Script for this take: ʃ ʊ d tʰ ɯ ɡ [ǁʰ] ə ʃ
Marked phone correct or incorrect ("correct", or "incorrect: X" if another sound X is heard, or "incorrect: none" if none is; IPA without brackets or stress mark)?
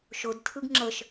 incorrect: ŋ͡ǁ